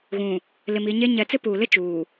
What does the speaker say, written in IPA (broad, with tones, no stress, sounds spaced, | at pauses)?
ɣ ũ˨ | l ɪ˨ m i˨ ɲ e˦ ɲ ɛ˨˦ t͡s ɪ˦ p uː˨ l ɪ˦ t͡ʃ uː˨